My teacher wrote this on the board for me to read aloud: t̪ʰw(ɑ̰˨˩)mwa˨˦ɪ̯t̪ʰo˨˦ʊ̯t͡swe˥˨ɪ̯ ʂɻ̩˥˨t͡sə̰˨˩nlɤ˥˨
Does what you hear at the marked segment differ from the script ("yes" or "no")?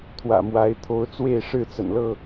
yes